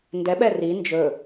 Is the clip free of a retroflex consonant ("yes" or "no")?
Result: yes